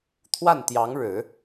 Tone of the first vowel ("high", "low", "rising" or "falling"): falling